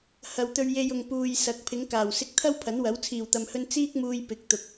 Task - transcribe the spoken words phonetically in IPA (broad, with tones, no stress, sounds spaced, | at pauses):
h ɐ˨ w t̪ ɵ˧ ɥ j e˧ j ʊ˨ ŋ p uː˨ j s ɐ˨˥ k̚ pʰ ɪ˨˧ ŋ k aː˨˩ w s ɪ˧ k̚ t̪ʰ ɐ˥ w pʰ ɐ˨˥ n w ɐ˨˥ w t͡sʰ iː˨˩ w t̪ ɐ˨ m h ɵ˧ n t͡s iː˥ k̚ m uː˧ j p ɪ˨˥ k̚ t̪ ʊ˨ k̚